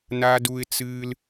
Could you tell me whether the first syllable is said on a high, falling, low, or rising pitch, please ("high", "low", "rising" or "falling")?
high